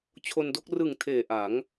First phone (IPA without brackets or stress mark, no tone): t͡ɕʰ